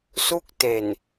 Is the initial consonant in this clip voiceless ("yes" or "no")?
yes